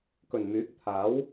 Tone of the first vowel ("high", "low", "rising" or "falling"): low